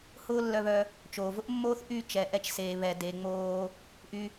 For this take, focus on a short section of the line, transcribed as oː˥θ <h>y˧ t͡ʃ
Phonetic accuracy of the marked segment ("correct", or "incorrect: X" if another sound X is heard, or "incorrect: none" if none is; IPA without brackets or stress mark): incorrect: ʔ